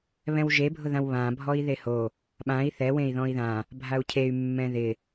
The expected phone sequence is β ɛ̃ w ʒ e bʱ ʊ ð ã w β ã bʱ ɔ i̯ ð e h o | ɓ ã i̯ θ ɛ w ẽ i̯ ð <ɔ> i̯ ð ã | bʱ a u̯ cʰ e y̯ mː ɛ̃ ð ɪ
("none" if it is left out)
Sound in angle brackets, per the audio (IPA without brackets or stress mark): ɔ̃